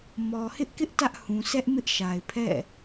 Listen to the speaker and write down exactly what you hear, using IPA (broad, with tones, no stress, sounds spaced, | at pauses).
m ɔ˨ h ɪ˦ ʔ k ɪ˦ ʔ t ä˦ ʔ h ũ˨ s ɛ˦ ʔ m ɪ˦ ʔ ʃ a˨ ɪ̯ pʰ ɛ̰˦˨